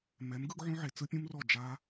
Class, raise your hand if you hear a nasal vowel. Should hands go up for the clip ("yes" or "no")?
yes